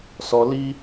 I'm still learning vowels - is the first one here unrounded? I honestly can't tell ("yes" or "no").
no